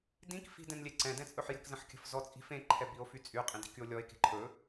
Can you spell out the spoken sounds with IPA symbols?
d ĩ k f i̤ d ɛ̃ n lʲ e ǀ ɛ̃ d ɛ̃ t͡sʼ ɵ ħ j ə̤ k z ə̃ ħ kʲ ə̤ f z ɔ t͡sʼ i̤ f ẽ ǃʰ ɛ b i o̯ f y t͡sʼ y qʼ ĩ d i̤ k y o̯ lʲ ɔ e̯ k e̤ ǃʰ ɵ

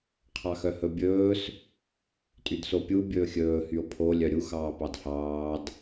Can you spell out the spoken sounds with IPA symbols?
qʰ ɑ x œ h ɵ bʲ ɵː s | tʼ y d s o pʲ u bʲ ɵː xʲ ɵː h y o̯ pʰ o lʲ œ ɾʲ u x ɑː p ɑ d h ɑː d

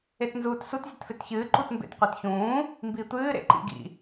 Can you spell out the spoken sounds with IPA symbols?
e t n z uː t s u t zʲ ɐ t f e t ç ɨː ǃ u t m b ḛ t qʷ e t ç ũː | m b i tʷ ɨː ɾ ḛ ǃ ḭ ɡ ḭ

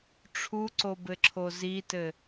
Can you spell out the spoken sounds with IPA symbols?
ʈ͡ʂʰ u ǀ o b ɘ ǁʰ o z i t ɘ

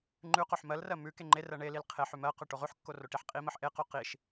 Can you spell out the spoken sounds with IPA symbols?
ŋ͡ǃ ʉ q o ħ m ɜ l r ɜ m ʉ k e ŋ͡ǃ e r ɜ ɳ e l i l qʰ e ħ ʉ m ɜ q ʉ ʈ o ʁ ʉ ħ kː o r o ʈ i ħ qʼ i m ɜ ħ ʔ e q o q i ʃ

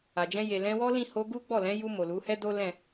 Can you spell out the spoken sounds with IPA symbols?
a˨ d͡ʒ ɛ̃˧ j e˨ l ɛ̃˧ w ɔ˦ l ĩ˦˨ h o˧ ɡ u˦ ɡ͡b ɔ˦˨ l ɛ̃˨˦ j u˧ m o˨ l u˨˦ h ɛ˦ d o˦ l ɛ̃˦˨

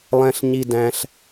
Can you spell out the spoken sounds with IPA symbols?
lˠ ɛ̃˥ ɬ ɲ i˥ d æ̃˥ ɬ

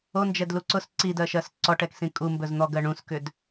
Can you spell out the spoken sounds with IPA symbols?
o n d͡ʒ ɛ d l u ǀ ʊ s ǀ i d ɜ ʃ ɜ s ǀ ɔ ʈ ɛ k s ĩ kʼ u m b ɵ z n̪ ɔ ɡ ɜ ɳ ũ s k ʏ d

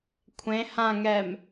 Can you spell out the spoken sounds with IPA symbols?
kʷʰ ẽ h ã ŋ ɛ m

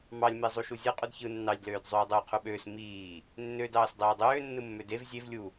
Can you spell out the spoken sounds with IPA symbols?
m ɑ lʲ m e zˤ u ʃ u zʲ ɯ qʼ u d ç ɯ nː ɑ lʲ d l øː d zˤ øː dˤ uː qʰ u ɓ øː s m iː | nː ø d ɑː s dˤ øː dˤ øː nː ɯ mː ø d e v zʲ e v lʲ u

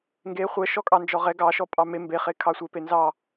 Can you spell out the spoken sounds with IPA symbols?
ŋ ɡ e χʷ ɛ ʃ ɔ kʼ ɑ n d͡ʒ ɔ ʁ ɛ ɡ ɑ ʃ ɔ pʼ ɑ m e m b e χ e kʰ ɑ sʷ e p e n z ɑ

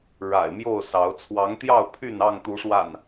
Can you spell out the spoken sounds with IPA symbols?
ɻ a̰˨˩ ɪ̯ m j o˥˨ ʊ̯ s ɑ˨˦ ʊ̯ t͡sʰ w ɑ˨˦ ŋ t̪ j ɑ˥˨ ʊ̯ pʰ y˥˨ n ɑ˥˨ ŋ t̪ u˨˦ ʂ w a̰˨˩ n

